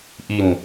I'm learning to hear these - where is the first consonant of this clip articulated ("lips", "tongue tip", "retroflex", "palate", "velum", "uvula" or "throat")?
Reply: throat